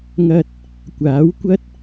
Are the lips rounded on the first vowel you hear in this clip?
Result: no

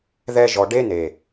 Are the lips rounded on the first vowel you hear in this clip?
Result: no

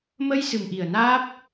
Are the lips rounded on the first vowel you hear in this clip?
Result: no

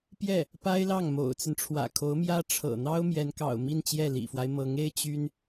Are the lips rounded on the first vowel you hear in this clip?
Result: no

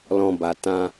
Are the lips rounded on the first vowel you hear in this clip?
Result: yes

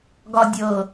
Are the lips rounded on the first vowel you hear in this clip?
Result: yes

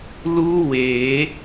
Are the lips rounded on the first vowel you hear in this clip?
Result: yes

